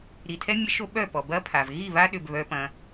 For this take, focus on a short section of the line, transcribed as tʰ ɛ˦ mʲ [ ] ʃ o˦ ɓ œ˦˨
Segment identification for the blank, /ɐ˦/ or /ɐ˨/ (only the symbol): ɐ˦